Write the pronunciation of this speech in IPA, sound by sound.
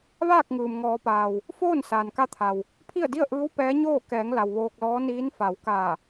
ʋ aː˥˨ k̚ ŋ ɯː˩ m ŋ ɔː˩˧ p aː˩ w | f oː˥˨ n s aː˩ n k a˧ t̪ʰ a˩ w | pʰ i˥˨ ə̯ d i˥˨ ə̯ ʔ ɯː˧˥ w p ɛː˧˥ ɲ oː˥˨ k ɛː˩˧ ŋ l a˩ w ʋ oː˧ k̚ l ɔː˧˥ n iː˧˥ n f a˩˧ w k aː˧˩

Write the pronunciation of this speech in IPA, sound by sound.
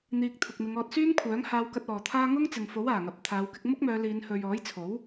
n̪ iː˧ k̚ t̪ʰ ʊ˨ k̚ m ɪ˨˧ ŋ ɔː˧ t̚ s yː˥ m kʷʰ œː˨˥ ŋ h aː˧ w k ɐ˧ t̚ ɔː˨ t̪ʰ aː˥ ŋ ʊ˥ ŋ t͡s ɪ˨ ŋ f o˨˥ w aː˨˩ ŋ ɐ˨ p̚ t̪ʰ aː˨˧ w k ɪ˧ k̚ m ʊ˥ k̚ m œː˨˧ l iː˨˧ n h ɵ˨ ɥ ɔː˨˥ j t͡sʰ o˨˥ w

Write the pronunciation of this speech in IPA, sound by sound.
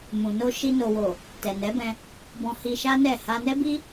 m ũ˨ n o˧ ʃ i˧ n o˨ w o˨ | t ɛ˨ n ɛ˨˦ b ɛ̃˧ | b ɔ̃˧ h i˧ ʃ a˦ n ɛ˦˨ h a˧ n ɛ˦ b i˦

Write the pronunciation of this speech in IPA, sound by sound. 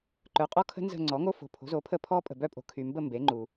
ǃ œ˩˥ qʼ ɔ˦ kʰ ə̤˦ n z ə̤˦˨ ŋ͡ǀ ɔ˩˥ ŋ o˦ f o̤˨ pʰ o̤˩˥ z o˩˥ pʰ ə˦˨ pʰ ɔ˦ pʼ ə̤˨ b œ˦˨ pʼ o̤˨ kʰ y˨ m b ə˦˨ m b e˩˥ ŋ͡ǃ u˨

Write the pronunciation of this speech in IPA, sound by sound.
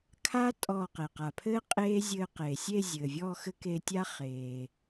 kʰ a˦˥ tʼ ɔː˧˩ q e˩ q a˩ pʰ ɘː˦˥ qʼ eː˦˥ zʲ ɘː˧ q eː˩ sʲ e˥˧ zʲ ɘː˩ vʲ ɔː˥˧ x ɘ˦˥ k e˧ tʲ a˦˥ χ eː˩

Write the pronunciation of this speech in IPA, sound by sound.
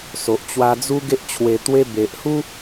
s o˨ ʔ t͡ɕ w a˧ d͡z u˦ ɡ e˦ ʔ t͡ɕʰ w e˧ t̪ w e˦ b e˨ ʔ h u˦

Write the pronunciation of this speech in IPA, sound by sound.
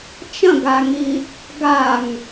t͡ʃ ɐ̃ ɡ a ŋ i | ɡ a ŋ

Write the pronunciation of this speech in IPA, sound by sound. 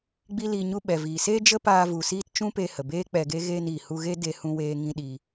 ɡ͡b i˦ l iː˧ ɲ u˧ ɓ ɛ˨ v iː˨ s eː˦ d͡ʒ ə˦ p aː˧ v u˨ s iː˧ t t͡ʃ ũ˦ p eː˧ h ə˨ b eː˦ k͡p ɛ˧ ɡ e˦ ɣ eː˧ n iː˨ h u˧ ɣ e˦ d e˦ h ũ˦ w eː˦ ŋ ĩ˦ ɗ iː˧

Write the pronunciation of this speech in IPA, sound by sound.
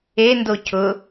e n d o cʰ ʊ

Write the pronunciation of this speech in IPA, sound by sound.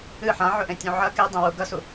ɨ ħ ã ʕ ɵ ʔ ẽ tʲ ũ ʕ ɐ k e dˤ ẽ w u ɡ ɐ s u

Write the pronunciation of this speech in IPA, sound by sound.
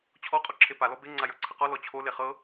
t͡ɕʰ ɔ qʼ ɔ ǁʰ e p a l ɔ b e ŋ͡ǀ a j ɤ ǀʰ ə q ɔ l ɔ t͡ɕʰ o l e χ ɤ

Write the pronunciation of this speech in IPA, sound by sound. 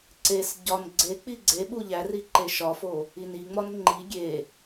ǀ e s ɟ ɒ n ɡ͡ǀ e k͡p i ɡ͡ǀ e ɓ u ʎ æ r i ǃ e ʃ ɒ f o | i n i ŋ͡m ɒ n ŋ͡ǃ i ɡʲ e

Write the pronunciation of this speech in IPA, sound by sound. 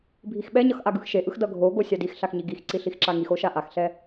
bʱ i x ɓ ɛ ɲ ʌ x ʔ a ɡ ɯ x ʃ e ʔ ɯ x d ʌ ɡʱ o ɡ o sʲ a d i x ɬ a x ɲ i ɡ i x ǀ i ɬ i x ǁ a ŋ i x o ʃ a ʔ a x ɬ ɛ

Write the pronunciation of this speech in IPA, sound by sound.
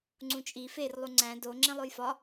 ŋ͡ǀ ũ t͡ʃʼ i f e r lˠ u ŋ͡ǀ æ̃ d o ŋ͡ǁ ẽ lˠ o j f ɒ

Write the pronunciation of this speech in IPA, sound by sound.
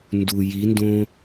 n d u j i n d õ

